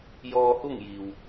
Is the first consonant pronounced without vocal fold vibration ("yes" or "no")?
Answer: no